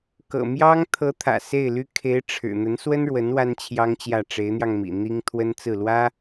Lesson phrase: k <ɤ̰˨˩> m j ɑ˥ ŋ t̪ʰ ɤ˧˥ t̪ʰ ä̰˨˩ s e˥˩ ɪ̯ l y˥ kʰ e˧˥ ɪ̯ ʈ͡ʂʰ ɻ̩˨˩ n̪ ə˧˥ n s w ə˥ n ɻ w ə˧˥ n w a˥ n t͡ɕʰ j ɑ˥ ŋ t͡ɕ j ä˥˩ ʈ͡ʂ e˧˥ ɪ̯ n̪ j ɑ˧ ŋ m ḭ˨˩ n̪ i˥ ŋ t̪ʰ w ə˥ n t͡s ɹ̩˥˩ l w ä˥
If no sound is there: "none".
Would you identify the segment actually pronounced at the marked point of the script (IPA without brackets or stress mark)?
ɤ̰˨˩